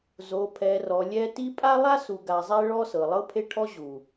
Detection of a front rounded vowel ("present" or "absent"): absent